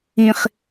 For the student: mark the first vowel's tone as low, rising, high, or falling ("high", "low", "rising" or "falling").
low